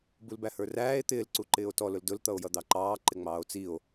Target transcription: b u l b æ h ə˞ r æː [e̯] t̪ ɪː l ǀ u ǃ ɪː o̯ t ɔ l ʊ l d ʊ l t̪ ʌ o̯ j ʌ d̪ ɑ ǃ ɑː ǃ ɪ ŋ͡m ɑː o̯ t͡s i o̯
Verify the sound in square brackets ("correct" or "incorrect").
correct